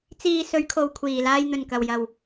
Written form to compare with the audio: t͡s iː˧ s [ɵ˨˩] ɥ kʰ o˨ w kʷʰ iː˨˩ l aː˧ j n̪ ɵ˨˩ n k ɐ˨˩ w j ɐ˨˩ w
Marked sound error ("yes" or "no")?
yes